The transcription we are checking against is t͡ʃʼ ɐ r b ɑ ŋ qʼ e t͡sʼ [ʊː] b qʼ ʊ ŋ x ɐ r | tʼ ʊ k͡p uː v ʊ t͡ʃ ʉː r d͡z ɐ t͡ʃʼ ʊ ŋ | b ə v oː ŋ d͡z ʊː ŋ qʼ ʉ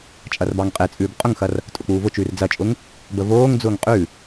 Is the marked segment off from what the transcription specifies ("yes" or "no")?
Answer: yes